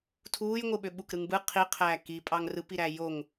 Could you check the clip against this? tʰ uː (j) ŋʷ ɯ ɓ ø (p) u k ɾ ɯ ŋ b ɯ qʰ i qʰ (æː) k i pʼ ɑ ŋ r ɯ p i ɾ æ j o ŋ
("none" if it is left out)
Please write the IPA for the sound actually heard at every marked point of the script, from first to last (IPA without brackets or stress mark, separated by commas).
j, ɓ, æː